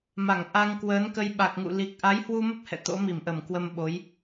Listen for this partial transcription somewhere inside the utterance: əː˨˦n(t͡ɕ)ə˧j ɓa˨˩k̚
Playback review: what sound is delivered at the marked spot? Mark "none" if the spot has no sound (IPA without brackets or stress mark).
k